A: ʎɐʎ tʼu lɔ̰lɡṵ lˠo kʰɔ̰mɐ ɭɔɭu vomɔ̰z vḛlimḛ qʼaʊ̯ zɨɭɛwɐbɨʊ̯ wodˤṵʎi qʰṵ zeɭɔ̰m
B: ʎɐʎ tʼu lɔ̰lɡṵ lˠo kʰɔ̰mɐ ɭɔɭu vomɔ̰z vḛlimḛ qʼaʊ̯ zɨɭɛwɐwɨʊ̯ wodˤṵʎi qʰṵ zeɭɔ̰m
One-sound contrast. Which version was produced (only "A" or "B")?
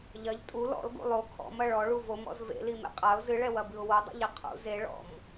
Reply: A